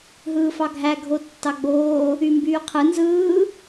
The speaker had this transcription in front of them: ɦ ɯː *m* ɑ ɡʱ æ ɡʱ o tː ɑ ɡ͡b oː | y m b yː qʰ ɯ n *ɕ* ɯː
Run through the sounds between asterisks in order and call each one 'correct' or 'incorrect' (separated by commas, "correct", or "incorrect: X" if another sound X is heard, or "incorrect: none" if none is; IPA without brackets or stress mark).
incorrect: f, incorrect: z